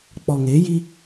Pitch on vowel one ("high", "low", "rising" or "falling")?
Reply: low